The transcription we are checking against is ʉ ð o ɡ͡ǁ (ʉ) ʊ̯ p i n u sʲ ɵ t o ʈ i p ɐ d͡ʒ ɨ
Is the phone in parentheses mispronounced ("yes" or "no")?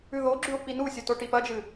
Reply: no